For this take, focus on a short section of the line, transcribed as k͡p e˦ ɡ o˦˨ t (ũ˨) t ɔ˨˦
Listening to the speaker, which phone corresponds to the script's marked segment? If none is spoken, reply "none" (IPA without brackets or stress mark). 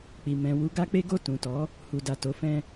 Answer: ũ˨